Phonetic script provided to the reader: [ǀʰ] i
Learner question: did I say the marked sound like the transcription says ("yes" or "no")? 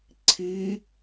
yes